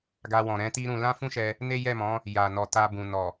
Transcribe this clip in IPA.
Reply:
ɡ a˧ w ɔ̃˨ ɾ ɛ̃˨˦ t i˦ ɾ ũ˧ l ã˦ f ũ˦ ʃ ɛ˧ | n e˦ j ɛ˦˨ m ɔ̃˨˦ | j a˨ n ɔ˨ t a˧ b ũ˨ n ɔ˨

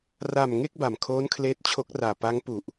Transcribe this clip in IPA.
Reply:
r a˨˩ m ŋ e˥˩ k̚ b a˨˩ m kʰ oː˦˥ n kʰ l eː˦˥ t̚ t͡ɕʰ o˦˥ k̚ r aː˨˩ p a˦˥ ŋ p u˨˩ ʔ

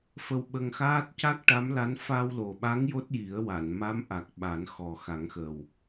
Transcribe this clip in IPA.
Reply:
f ə˧ w ɓ ə˧ ŋ x aː˦˥ t̚ c a˦˥ k̚ ʈ a˧˥ m l a˧˥ n f a˧ w l o˨˩ ɓ a˧˥ ŋ j o˦˥ t̚ j i˨˩˦ ə̯ w a˨˩˨ n m a˧˥ m ʔ a˨˩ k̚ ɓ a˨˩˦ n x ɔ˨˩ x a˨˩˦ ŋ x ə˨˩ w

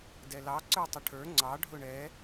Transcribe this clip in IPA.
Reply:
d ɛ l ɑ ǀ ə˞ tˤ ʊ ʈʰ ə˞ ŋ͡ǀ ɑ ɖʱ ʊ ɳ ɛ

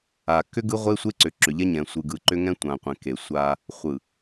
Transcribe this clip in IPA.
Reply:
a˨ k ʏ˦ ɡ ɯ˦ ʁʷ e˦ sʷ e˦ ǀ ʏ˨ ǁ ʏ˨ ʎ ɛ˦ ɲ ɛ̃˨ sʷ ɯ˨ ɡ ɯ˨ ǃ ʏ˦ ŋ ɛ̃˦ tʷ ã˨ qʷ ɛ̃˨ k e˨ sʷ a˦ | χʷ ɯ˨

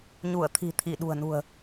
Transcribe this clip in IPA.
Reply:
ɲ u˧˩ ə̯ t̪ʰ i̤˨˩ t̪ʰ i˧˩ ɗ ṳ˨˩ ə̯ n ṳ˨˩ ə̯

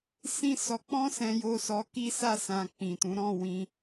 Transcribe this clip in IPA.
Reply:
s ĩ˦ s ɔ˧ k͡p ɔ̃˦ s ɛ̃˧ j o˧ s ɔ˧ k i˦ s a˦˨ s ã˧ k͡p ĩ˨ t ũ˨˦ ɾ ɔ̃˦˨ w ĩ˧

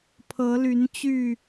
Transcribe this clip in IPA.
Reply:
pʰ ɤ˨˦ l y˨˦ n t͡ɕ y˥˨

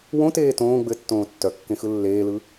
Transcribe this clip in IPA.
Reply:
w õ t eː t õː ɡ͡b ɘ tː õː tː œ kː ẽ x ɯ lː eː l ɯ

